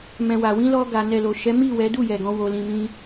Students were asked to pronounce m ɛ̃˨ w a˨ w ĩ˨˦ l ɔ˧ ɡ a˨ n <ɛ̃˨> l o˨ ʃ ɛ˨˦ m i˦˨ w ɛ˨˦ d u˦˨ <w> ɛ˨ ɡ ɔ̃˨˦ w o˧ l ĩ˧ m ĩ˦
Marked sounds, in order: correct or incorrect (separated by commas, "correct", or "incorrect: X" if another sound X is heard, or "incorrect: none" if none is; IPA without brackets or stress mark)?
incorrect: ɛ˨, incorrect: j